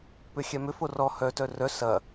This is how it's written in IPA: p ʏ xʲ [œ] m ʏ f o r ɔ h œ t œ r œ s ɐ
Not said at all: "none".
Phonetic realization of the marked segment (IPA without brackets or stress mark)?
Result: ɛ